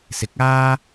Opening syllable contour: rising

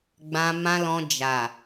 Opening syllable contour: low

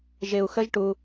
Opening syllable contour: low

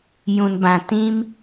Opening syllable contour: low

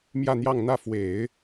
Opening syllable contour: falling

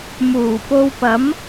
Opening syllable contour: low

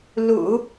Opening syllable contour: low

